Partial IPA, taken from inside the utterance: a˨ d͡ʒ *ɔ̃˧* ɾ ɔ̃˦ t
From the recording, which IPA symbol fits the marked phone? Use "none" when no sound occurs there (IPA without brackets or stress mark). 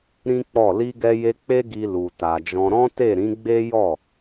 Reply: ɔ̃˧